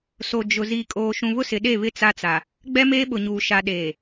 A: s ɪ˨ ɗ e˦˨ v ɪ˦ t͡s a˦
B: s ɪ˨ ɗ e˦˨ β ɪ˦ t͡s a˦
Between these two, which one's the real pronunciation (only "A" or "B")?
B